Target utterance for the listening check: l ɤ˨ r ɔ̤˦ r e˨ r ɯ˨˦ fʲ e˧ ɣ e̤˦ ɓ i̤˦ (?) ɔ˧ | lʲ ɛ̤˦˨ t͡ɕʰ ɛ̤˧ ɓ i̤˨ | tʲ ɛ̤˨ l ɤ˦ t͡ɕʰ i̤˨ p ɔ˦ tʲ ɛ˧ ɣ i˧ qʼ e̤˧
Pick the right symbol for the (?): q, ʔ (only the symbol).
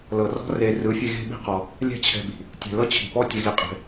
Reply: q